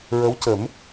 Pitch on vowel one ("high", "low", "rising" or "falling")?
rising